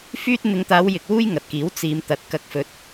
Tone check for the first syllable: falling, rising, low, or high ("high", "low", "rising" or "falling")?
high